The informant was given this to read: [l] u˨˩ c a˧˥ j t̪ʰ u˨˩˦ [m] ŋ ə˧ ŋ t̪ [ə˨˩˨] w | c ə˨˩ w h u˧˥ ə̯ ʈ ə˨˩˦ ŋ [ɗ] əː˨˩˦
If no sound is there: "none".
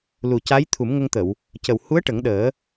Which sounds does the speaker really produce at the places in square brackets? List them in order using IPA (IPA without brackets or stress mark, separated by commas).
l, m, ə˨˩˨, ɗ